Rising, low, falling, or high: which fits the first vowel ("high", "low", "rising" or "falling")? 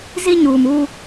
high